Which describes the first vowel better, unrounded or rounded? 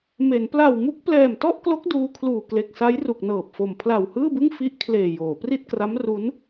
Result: unrounded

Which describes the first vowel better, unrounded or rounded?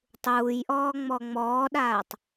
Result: rounded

